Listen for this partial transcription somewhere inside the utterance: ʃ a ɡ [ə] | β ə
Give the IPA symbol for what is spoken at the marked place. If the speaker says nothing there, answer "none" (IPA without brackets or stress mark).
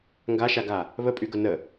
a